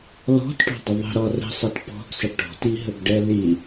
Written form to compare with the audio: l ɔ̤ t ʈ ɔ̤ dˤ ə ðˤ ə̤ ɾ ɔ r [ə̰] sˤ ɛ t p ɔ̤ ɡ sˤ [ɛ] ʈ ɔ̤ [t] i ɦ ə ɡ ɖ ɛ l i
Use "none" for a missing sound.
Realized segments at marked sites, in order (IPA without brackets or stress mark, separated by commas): ə̤, ɪ, t